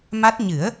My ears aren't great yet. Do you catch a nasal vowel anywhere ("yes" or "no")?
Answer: no